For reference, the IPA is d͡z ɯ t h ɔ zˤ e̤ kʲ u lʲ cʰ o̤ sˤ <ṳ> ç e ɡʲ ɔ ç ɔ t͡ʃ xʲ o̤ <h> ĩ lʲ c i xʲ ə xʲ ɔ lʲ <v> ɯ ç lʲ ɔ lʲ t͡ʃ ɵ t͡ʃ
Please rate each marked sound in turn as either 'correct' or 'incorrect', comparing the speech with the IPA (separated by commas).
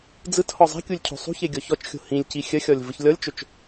correct, correct, correct